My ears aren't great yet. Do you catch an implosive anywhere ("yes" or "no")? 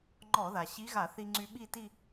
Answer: yes